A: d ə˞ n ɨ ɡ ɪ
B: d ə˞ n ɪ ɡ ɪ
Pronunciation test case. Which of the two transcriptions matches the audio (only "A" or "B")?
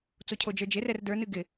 A